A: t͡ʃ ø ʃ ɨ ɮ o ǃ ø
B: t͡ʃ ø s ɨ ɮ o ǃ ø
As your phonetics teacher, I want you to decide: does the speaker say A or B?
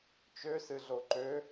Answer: B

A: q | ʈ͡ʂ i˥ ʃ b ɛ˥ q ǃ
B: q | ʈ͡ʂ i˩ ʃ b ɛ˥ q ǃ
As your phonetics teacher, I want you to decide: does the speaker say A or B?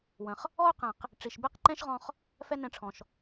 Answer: B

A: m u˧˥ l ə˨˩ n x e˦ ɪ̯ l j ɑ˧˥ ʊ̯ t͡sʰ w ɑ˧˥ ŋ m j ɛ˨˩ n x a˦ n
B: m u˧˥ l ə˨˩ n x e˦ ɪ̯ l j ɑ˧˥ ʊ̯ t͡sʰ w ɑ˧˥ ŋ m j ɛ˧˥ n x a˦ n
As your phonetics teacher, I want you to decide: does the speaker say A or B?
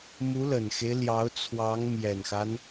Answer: A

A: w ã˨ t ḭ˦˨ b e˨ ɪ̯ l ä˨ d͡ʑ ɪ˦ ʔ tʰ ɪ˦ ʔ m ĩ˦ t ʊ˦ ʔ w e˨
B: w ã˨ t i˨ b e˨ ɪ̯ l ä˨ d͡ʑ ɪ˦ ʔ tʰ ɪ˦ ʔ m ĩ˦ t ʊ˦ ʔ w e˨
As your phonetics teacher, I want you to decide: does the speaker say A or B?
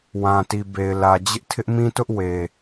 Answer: B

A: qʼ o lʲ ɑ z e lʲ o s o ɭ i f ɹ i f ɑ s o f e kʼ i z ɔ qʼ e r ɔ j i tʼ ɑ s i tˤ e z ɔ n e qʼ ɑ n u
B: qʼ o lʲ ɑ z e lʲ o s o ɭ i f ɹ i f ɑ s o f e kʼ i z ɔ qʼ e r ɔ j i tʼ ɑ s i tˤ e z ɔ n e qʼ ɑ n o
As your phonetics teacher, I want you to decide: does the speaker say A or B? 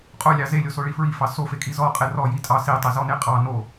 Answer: B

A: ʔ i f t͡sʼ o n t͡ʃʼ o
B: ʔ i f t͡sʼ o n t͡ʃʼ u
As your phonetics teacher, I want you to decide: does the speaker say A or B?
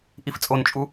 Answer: B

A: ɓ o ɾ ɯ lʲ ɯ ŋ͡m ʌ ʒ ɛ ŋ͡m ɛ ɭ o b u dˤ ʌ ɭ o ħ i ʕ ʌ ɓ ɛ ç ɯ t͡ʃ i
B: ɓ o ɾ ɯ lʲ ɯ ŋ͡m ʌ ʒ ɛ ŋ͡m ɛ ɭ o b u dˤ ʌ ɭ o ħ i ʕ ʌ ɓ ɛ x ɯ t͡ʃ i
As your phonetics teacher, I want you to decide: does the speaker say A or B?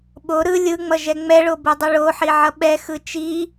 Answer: B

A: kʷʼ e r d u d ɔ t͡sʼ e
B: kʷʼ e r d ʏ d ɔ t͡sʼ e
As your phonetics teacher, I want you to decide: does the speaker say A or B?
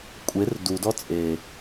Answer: A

